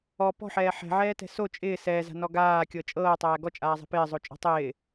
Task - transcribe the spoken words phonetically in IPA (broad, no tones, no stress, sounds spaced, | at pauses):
ɔ p ɔ̤ ħ ɛː ħ ɛ̤ ʕ ɛː t ɛ̤ s o t͡ʃʼ ɪː s ɛː z a̤ n ɔ ɡ aː kʲ ɤ t͡ʃʼ ɤː tˤ æː ɡ ɔ t͡ʃʼ aː zˤ æ̤ p ɪː zˤ o t͡ʃʼ ɔ̤ tˤ ɪː